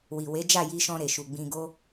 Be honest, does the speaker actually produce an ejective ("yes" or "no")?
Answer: no